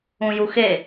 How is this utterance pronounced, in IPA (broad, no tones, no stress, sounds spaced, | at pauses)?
ũ j u x e